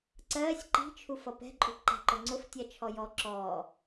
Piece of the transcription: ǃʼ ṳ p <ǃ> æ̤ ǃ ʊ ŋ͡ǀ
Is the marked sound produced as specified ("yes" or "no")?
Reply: yes